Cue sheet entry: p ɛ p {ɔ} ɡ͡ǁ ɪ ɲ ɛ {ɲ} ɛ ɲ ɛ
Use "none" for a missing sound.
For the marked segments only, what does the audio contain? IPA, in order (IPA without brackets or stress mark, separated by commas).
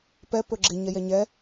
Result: ɵ, j